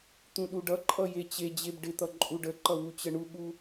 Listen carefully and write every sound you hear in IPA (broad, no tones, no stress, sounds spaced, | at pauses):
t̪ ũ ɗ u ɖ ʌ ǃʼ ʌ j e t͡ɕ e d͡ʑ e b ɖ ɪ t̪ ʌ ǃʼ u ɖ ə ǃ ʌ w u t͡ɕ ə ɳ u ɠ u